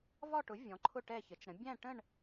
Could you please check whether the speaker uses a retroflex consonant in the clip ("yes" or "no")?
yes